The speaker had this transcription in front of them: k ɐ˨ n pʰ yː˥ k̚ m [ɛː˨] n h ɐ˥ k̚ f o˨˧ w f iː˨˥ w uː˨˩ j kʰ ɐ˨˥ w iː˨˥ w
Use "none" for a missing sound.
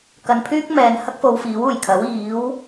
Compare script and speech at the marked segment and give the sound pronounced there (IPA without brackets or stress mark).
ɛː˨